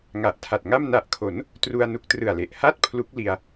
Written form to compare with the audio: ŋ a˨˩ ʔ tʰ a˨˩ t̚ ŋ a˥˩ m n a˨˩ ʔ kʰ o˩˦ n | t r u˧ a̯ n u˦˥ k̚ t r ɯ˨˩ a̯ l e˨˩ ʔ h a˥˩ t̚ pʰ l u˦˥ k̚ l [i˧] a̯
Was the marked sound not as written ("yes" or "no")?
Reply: no